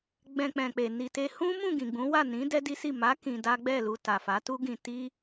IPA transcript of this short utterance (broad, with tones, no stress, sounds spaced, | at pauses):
ɡ͡b ɛ̃˧ k͡p ɛ̃˨ k͡p e˨ n i˨ t e˧ h ũ˦ m ũ˦˨ ɡ ĩ˨ ɡ͡b ũ˨˦ w a˦˨ n ĩ˨˦ d ɛ˦ d i˦ s i˦˨ m a˨˦ k ĩ˧ d a˦ ɡ͡b ɛ˦˨ l u˧ t a˨ f a˨˦ t u˦ ɡ ĩ˧ t i˦